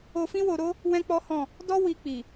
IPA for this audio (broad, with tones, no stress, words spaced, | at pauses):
o˧fĩ˦wo˧ɾo˦ | wɛ̃˦k͡pɔ˦hɔ̃˦˨ | dɔ˦ wi˧k͡pi˨